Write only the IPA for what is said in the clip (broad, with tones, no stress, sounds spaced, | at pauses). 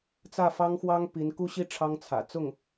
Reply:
t͡s ä˥˩ f ɑ˥ ŋ x w ɑ˥ ŋ p i˧˥ n k u˥ ɕ i˥ ʈ͡ʂʰ ɑ˥ ŋ t͡sʰ ä̰˨˩ t͡s ʊ˥˩ ŋ